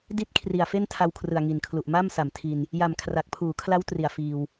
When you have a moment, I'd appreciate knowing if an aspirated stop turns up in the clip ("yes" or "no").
yes